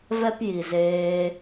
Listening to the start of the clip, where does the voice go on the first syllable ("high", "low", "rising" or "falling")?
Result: high